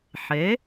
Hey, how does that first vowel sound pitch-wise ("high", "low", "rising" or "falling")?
rising